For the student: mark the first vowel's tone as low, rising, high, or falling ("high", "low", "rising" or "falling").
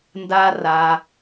high